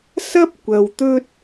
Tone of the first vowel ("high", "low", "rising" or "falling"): high